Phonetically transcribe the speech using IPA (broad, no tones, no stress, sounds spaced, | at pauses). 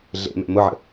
ɮ ḛ m ɛ̰ m ʊ ʕ ə̰